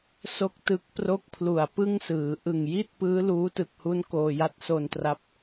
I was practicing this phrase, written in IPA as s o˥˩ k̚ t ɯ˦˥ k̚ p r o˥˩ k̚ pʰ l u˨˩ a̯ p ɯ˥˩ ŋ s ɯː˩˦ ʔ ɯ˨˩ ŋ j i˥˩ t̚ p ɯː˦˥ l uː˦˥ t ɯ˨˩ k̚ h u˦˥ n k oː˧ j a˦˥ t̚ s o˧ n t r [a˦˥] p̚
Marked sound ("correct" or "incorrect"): correct